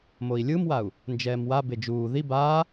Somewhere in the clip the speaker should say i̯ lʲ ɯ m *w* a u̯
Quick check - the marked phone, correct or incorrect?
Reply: correct